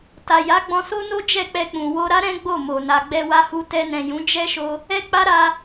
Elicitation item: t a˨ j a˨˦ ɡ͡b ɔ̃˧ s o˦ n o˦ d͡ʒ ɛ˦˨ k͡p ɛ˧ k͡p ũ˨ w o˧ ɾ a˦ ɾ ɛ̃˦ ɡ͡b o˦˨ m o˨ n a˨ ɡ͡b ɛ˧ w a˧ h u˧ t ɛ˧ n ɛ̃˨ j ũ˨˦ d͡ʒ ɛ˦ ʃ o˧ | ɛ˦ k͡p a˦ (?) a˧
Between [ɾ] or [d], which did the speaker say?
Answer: ɾ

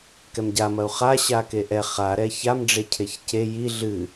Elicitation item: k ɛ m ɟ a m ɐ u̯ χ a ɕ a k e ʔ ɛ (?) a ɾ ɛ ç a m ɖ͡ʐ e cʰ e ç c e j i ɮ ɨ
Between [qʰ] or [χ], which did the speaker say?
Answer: χ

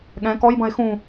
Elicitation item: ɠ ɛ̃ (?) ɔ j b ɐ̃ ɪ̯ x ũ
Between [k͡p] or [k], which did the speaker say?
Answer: k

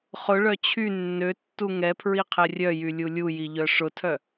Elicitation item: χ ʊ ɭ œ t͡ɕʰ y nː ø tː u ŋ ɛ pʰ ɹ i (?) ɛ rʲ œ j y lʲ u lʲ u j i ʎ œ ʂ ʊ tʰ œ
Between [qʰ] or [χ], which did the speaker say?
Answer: qʰ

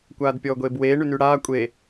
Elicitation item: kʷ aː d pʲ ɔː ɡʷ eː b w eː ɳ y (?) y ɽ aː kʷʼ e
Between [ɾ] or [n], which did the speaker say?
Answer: n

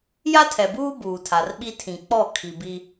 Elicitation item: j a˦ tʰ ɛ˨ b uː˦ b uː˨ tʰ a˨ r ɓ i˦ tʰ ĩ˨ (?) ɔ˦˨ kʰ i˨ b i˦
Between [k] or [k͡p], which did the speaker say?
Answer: k͡p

